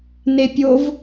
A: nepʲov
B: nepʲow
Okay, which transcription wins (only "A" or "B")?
A